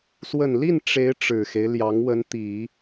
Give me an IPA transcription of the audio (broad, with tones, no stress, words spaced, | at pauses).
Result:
swə˨˩nli˥˩n ʈ͡ʂe˧˥ɪ̯ ʈ͡ʂɻ̩˨˩xe˦ɪ̯ ljɑ˧˥ŋ wə˧˥nt̪i˨˩˦